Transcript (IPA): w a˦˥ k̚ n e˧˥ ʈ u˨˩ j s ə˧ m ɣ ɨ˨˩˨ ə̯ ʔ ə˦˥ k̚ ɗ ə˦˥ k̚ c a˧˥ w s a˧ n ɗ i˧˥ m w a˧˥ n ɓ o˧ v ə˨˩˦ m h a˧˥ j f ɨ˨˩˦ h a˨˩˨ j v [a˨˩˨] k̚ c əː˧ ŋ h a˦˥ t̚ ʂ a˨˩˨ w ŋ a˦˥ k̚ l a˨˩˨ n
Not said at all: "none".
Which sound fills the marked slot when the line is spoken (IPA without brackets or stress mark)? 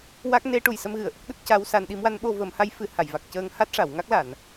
a˨˩